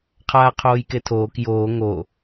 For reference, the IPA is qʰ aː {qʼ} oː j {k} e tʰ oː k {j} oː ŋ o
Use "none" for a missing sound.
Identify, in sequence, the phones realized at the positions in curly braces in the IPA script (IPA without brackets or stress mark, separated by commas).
qʰ, k, j